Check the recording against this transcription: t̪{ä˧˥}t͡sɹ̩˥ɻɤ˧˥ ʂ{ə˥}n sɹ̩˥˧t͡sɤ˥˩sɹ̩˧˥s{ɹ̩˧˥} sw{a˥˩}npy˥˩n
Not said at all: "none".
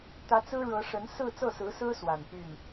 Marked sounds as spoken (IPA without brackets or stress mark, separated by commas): ä˧˥, ə˧˥, ɹ̩˥, a˨˩